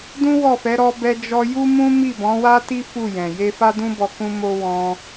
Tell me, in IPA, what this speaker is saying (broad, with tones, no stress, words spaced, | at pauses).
dũ˦wɔ˦˨fɛ˨˦ ɾɔ˦bɛ˦d͡ʒɔ˦ ju˦mũ˦ mi˦˨bɔ̃˨˦wa˦ti˦ fu˦˨jɛ̃˨ je˧fa˦dũ˦bɔ˧ kũ˦mo˦ wɔ̃˦